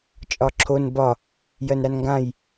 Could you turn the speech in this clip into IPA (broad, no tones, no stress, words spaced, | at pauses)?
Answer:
t͡ʃʼɒǁʰon bɒ | jɜnɾanŋɡãj